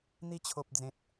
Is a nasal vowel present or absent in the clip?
present